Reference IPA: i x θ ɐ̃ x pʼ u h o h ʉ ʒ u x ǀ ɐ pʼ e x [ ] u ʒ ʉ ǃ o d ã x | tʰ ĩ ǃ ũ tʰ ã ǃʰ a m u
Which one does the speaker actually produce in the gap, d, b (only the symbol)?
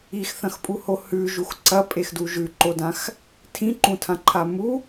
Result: d